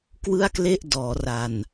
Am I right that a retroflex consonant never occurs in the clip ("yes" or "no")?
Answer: yes